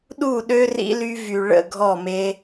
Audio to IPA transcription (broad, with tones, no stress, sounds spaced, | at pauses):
ɗ u˦˨ ɗ ø˦ r ḭ˧ l y˧ v y˨ ɭ ə̰˦˨ ɡʱ ɔ˦˨ m e˧